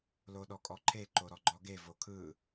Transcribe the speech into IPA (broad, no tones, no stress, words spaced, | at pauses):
loɗɔkʼɔǃʰe ǃoɾɔɡ͡ǃɔɡe vokʰɯ